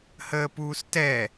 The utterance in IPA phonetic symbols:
h əː p uː s t ɛ

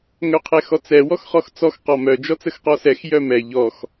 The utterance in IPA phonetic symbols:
ŋ œ qʰ ɛ x ɔ t͡s ɛ w ɔ x χ ɔ x t͡s ɔ x q ɔ m œ d͡ʒ ɔ t͡s ə x q ɔ s ɛ x j œ m ɛ ʎ ɔ x

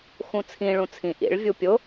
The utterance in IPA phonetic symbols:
x ũ t͡sʰ ĩ ɭ ũ t͡sʰ ĩ ʔ ḭ ɭ vʲ u pʲ ʊ

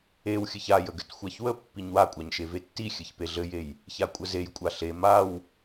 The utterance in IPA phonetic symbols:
e w xʲ ɘ ç a j ə ɡ ɘ t xʷ a ç w ə pː i ɲ w a kʷʼ a ɲ ʃ e v e tː i xʲ ɘ ç p e ɮ ɘ j e j | ç a kʷʼ ə z e j kʷʼ a ɬ e m a w

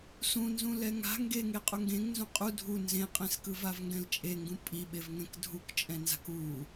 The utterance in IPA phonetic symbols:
s ũ n z ũ l ɛ ŋ a̤ ŋ ɡ e ŋ e qʼ u ŋ ɡ ẽ ŋ n z ũ qʼ u dʱ u n z ẽ qʼ ẽ s k ɯ v a v ŋ ɡ ɛ̃ l t͡ʃʼ e ŋ ɡ ũ pʼ i ɓ e v ŋ ɛ̃ k dʱ u k t͡ʃʼ ɛ̃ n z a̤ k u

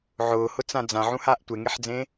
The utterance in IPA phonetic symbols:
ʕ ʊː h ʊ t͡s ã d͡z ã ʕ ũ h aː ʔ tʷ e ŋ e ħ d͡z ẽ

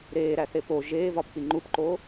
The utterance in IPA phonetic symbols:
ɾ eː ɾ æ θ e p o ʒ eː v ɒ p k͡p i ŋ͡ǃ u p ǃ oː

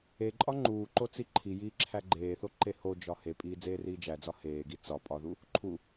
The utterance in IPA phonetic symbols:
e ǃʼ ɒ ŋ͡ǃ uː ǃ o t͡s i ǃʰ i j iː ǁʰ æ ɡ͡ǃ eː θ o ǃ e h o d͡ʒ ɒ h e pʼ iː d͡z eː r iː d͡ʒ æ d͡z ɒ h eː ɡ i t͡s ɒ pʼ ɒ ð u | ǃʰ u

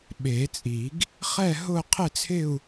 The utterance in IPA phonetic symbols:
ɓ e˨˩˦ t͡sʼ i˨˩˦ ɡ | χ ɛ˥˧ ɦ ʊ˥˧ qʰ ɪ˥˧ t͡sʰ ɪ˥˧ u̯

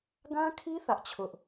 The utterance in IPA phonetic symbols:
ɡ ã˦ kʰ i˦ θ ä˦ ʔ t͡ɕʰ ʊ˦ ʔ

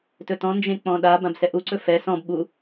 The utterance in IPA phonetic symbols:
t ɵ t ɔ̃ n d͡ʒ ẽ k͡p ɔ̃ ɗ a b ã b s ɛ ʔ u ǀ ɵ f ɛ s ɔ̃ b ɓ u

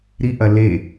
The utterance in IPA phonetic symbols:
ɾ i ʔ ɐ l e

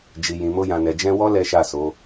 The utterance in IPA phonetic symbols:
d͡ʒ i˨ j ĩ˨ m o˧ j ã˨ n ɛ˨ d͡ʒ ɛ̃˧ w ɔ˦ l ɛ˦ ʃ a˦˨ s o˨˦

